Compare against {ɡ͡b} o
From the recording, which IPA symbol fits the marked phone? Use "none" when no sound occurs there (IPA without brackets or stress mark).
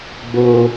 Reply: ɡ͡b